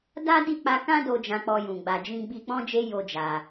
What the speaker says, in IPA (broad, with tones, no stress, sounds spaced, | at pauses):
d a˦ d i˦˨ k͡p a˧ k ã˦ d o˧ d͡ʒ ã˦ k͡p ɔ˦ j ũ˧ ɡ͡b a˧ d͡ʒ ĩ˦ ɡ͡b i˦ k͡p ɔ̃˦ d͡ʒ e˦ j o˦ d͡ʒ a˧